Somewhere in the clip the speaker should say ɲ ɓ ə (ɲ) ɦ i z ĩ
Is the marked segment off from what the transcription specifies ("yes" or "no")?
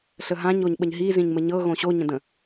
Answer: no